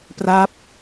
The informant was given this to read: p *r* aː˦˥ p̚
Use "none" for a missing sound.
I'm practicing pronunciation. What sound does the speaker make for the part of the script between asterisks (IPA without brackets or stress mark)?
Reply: r